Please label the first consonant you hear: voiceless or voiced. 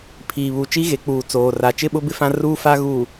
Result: voiceless